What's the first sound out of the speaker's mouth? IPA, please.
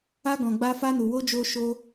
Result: a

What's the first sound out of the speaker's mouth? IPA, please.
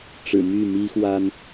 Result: ʈ͡ʂ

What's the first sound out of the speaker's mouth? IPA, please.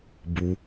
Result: b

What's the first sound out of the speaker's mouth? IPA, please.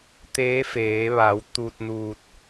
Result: t̪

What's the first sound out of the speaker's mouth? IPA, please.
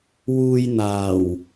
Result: w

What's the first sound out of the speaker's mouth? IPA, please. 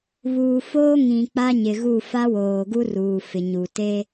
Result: β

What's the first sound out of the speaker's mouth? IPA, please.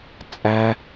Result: t͡sʼ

